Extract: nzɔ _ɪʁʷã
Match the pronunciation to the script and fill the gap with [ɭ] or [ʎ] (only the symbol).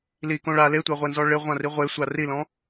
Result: ɭ